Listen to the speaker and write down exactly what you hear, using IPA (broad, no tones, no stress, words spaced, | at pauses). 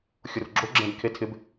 xʲʊrɡ͡ǁo ɡ͡ǁɛ̃bkʰetʰɪb